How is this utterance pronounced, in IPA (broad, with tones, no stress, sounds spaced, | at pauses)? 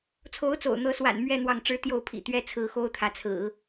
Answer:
t͡sʰ o˧˥ ʊ̯ t͡s o̰˨˩ ʊ̯ n̪ ɤ˧˥ s w a̰˨˩ n m ɥ ɛ˥˧ n̪ w ɑ˥˩ ŋ ʈ͡ʂ ɻ̩˥ t̪ j o˥˩ ʊ̯ pʰ ḭ˨˩ t̪ ɥ ɛ˥ t͡sʰ ɹ̩˧˥ x o˥ ʊ̯ t̪ʰ ä˧˥ t͡sʰ ɹ̩˨˩˦